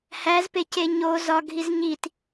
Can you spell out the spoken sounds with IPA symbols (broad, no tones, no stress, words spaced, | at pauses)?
hæzpece ɲo zɒɡʱiz ɲit